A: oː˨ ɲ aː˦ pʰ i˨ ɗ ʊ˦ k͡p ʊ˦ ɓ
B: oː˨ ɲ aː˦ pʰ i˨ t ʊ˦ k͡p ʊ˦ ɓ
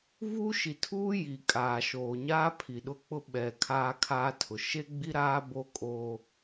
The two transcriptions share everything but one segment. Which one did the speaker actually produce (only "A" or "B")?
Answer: A